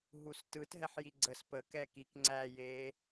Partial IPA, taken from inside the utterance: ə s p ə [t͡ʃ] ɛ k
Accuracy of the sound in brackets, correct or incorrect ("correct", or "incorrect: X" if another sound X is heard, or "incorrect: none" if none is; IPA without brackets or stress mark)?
incorrect: k